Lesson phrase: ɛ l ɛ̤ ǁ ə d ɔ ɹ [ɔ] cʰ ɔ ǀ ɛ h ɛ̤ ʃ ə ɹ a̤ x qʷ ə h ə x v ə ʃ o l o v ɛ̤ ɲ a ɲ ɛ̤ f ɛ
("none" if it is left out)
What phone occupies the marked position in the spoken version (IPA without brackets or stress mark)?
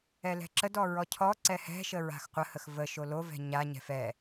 ɔ